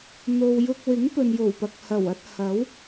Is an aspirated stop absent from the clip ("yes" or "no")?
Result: yes